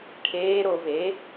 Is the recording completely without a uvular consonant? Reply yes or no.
yes